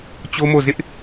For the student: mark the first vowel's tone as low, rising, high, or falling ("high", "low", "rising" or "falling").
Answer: high